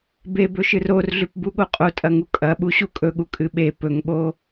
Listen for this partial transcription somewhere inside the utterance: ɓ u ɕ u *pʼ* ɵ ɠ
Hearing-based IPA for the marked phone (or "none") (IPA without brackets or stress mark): kʼ